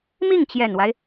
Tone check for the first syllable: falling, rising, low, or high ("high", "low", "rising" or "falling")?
falling